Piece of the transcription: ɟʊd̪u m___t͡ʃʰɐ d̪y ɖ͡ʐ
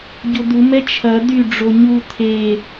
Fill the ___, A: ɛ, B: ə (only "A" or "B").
A